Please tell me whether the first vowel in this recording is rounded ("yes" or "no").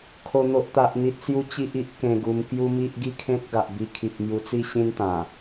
yes